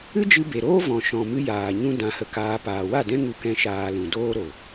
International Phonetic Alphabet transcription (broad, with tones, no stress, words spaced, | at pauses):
ɨ˦d͡ʒɨ˧be˨ɾoː˦ vɔ̃˨ ʃɔ̃˨mɨ˧ jaː˨ɲũ˦ dã˧hə˧kaː˧ paː˨wa˦˨dɛ̃˦ ŋu˧kɛ̃˧ ʃaː˧lũ˨ doː˦ɾo˨